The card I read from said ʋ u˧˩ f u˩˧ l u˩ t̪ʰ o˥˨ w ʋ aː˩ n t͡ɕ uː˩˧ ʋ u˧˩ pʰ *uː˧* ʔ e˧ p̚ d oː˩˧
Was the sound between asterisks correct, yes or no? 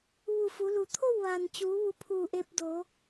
no